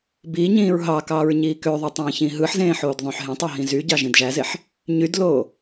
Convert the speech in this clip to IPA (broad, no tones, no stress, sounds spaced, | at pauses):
b iː ɲ ĩː ɹ ɦ ɑ k ɑ ɹ ɲ iː k ø ðˤ ø tˤ ẽː ç ĩ ɦ ɯ ħ z ẽː ħ oː d ðˤ õ ħ ɦ ẽ tˤ o ɦ ĩ z y ɟ ɑ ʒ ĩ d ʒ æ z e ħ | ɲ y d l oː